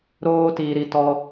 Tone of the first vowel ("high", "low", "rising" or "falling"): high